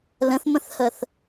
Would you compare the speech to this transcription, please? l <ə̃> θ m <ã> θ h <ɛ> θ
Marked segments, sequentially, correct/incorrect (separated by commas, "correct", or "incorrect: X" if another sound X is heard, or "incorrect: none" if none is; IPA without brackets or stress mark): correct, incorrect: ə̃, incorrect: ə